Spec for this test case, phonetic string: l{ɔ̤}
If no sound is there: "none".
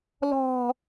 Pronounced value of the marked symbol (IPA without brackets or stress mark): ɔ̤